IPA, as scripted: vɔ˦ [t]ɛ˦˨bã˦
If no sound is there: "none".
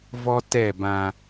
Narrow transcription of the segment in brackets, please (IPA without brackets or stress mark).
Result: t